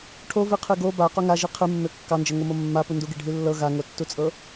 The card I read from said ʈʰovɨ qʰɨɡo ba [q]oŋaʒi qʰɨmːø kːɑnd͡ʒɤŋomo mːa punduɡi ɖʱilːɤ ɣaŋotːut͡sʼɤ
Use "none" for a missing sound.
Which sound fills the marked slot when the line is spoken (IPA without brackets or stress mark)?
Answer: q